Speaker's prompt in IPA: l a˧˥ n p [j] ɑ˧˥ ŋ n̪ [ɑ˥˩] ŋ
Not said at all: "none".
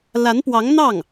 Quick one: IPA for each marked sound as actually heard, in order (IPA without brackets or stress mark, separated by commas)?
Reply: w, ɑ˥˩